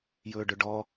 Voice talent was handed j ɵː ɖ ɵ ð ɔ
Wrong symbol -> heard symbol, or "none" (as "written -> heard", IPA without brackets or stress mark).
ð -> ɖ